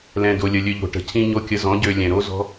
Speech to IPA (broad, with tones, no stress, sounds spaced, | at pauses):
l ɛ̃˨ d o˨ lʲ ə˨ lʲ ø˧ ʎ o̤˨ ʈ ə̤˨ cʰ ĩ˧ ɲ o˧ kʲ ə˧ z ɔ̃˨˦ ɟ ø˧ lʲ ɛ̃˨ ɾ o˦ z ɔ̤˦